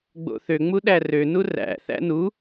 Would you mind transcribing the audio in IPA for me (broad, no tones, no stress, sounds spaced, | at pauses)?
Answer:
ɡ͡b o̰ θ ø ŋ͡m u ɗ æ r ø n u r æ̰ θ æ̰ n u